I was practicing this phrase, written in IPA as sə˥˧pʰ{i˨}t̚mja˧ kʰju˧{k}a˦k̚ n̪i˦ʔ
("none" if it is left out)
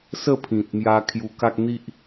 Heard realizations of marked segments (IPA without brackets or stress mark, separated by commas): ĩ˨, k